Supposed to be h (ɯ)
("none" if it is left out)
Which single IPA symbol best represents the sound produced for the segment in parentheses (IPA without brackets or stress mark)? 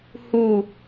u